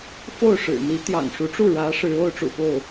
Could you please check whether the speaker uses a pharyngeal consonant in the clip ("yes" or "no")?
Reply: no